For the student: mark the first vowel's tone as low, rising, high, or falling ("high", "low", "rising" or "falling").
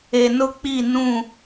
low